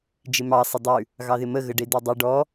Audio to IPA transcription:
d͡ʒ ɪ m ɑ sˤ ɪ dˤ ʉ | ɣ ɑ ð ɪ m ə ɣ ə ɖ e d e dˤ i ɖ ɔ

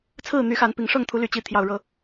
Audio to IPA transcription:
t͡sʰ ɹ̩˥˨ n̪ y˨˦ x a˨˦ n p i˨˦ ŋ ʂ ɤ˥˨ ŋ t̪ʰ u˨˦ l y˨˩ t͡ɕ i˨˦ t̪ʰ j ɑ˨˩ ʊ̯ ɻ ɤ˨˦

